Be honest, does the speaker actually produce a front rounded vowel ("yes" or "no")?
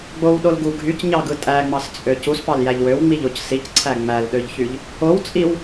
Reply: yes